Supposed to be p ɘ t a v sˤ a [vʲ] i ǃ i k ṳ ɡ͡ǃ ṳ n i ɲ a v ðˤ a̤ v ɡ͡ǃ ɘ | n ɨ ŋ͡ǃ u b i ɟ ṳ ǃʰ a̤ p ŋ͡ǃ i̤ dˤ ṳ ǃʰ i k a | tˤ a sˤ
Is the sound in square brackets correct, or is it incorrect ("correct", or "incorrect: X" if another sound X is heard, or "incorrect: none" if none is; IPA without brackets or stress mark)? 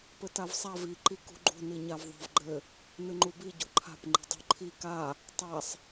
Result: incorrect: v